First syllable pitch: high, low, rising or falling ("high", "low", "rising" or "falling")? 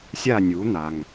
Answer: falling